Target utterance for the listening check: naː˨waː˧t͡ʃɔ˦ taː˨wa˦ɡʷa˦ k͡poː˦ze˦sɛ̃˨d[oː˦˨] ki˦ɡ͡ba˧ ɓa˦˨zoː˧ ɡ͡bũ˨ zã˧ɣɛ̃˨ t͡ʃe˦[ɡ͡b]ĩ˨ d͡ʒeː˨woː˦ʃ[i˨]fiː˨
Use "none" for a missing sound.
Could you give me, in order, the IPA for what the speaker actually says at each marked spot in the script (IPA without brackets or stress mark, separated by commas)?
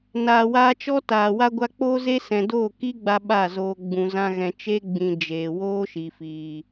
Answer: oː˦˨, ɡ͡b, i˨